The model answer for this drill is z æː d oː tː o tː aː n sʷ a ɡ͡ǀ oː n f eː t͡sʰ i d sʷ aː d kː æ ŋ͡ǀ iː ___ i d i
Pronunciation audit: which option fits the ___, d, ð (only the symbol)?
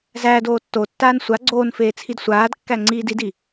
d